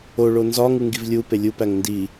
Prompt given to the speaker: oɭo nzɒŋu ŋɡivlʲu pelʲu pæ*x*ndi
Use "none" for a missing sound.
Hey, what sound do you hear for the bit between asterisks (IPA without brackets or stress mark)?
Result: ŋ